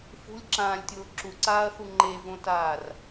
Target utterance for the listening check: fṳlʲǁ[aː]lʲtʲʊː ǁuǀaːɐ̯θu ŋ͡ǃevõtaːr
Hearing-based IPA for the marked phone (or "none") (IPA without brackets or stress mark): ãː